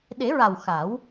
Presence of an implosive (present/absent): present